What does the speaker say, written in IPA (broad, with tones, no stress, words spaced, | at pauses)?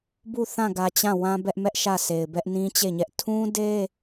bu˦˨ θã˦˨ɡä˨ t͡ɕã˦˨ wã˦bɛ˦ʔmɛ˦ʔ ʃä˦˨sʰe˨ɪ̯bɛ˦ʔ nĩ˦t͡ɕe˦˨ɲɛ˦ʔ tʰũ˦de˦